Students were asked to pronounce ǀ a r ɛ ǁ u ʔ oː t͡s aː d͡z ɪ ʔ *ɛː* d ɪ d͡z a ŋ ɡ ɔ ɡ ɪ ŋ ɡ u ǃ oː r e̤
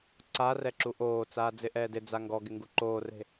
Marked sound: correct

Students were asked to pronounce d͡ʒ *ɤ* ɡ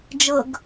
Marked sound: correct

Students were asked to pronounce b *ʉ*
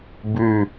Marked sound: correct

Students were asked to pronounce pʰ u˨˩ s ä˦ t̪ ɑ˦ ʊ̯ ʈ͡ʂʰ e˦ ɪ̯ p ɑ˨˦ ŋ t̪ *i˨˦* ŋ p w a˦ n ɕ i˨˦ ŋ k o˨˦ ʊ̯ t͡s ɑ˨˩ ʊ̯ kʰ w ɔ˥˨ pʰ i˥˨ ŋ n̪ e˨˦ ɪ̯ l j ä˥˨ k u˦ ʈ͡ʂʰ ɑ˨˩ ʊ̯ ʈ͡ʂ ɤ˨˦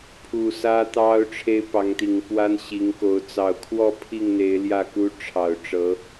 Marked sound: incorrect: i˨˩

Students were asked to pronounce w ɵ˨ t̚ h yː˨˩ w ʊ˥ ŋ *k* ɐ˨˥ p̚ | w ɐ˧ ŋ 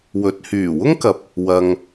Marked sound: correct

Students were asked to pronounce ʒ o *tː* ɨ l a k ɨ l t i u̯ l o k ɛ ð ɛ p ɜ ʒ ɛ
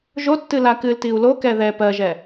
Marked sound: correct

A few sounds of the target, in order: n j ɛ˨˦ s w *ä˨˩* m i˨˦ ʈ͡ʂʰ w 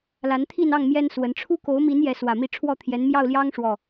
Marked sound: correct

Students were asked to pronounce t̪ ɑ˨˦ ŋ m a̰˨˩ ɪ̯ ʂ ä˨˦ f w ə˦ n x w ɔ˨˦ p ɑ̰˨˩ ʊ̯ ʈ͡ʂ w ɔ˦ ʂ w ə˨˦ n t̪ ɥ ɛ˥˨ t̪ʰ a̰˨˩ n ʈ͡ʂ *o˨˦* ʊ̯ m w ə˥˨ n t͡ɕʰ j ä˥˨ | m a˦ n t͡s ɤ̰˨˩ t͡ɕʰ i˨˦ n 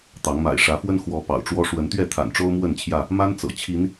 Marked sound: incorrect: o˦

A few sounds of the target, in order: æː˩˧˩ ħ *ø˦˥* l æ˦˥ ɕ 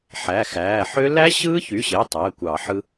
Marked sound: correct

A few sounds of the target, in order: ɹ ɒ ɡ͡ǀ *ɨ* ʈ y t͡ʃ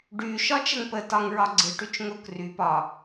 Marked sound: correct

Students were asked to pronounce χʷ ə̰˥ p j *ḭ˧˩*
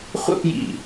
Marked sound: correct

